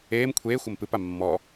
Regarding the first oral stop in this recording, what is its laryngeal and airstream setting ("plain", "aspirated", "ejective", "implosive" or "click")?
aspirated